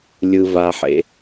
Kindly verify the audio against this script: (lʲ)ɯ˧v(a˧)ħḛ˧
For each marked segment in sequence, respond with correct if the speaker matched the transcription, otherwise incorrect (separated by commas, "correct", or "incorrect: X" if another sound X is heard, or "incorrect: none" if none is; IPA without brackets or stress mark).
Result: correct, correct